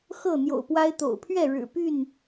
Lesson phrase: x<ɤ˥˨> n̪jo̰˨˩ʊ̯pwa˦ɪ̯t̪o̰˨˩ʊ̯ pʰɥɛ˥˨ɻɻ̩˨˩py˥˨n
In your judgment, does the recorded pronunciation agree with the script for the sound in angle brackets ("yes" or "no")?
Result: yes